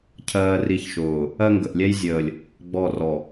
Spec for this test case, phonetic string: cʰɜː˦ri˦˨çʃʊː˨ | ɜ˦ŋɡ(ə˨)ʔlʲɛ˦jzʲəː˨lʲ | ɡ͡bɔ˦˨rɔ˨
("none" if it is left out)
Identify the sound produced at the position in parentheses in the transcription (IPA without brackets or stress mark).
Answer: ə˨